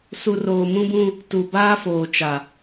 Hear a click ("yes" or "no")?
no